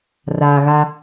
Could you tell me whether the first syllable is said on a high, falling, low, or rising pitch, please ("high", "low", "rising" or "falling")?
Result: low